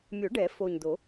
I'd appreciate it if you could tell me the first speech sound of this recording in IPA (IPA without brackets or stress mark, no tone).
mʲ